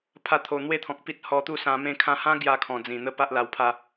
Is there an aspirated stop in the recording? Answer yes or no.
yes